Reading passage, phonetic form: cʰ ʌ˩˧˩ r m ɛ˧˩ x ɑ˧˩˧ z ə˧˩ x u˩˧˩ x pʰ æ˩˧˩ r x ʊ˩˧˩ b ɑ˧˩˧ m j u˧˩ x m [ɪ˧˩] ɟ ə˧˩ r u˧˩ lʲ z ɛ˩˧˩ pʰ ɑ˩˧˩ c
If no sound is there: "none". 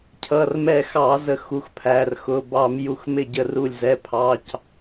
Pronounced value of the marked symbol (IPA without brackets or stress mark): ɪ˧˩